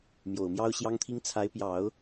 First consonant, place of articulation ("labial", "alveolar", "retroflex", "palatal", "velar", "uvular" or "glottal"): labial